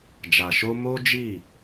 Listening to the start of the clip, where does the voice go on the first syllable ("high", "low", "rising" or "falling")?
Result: low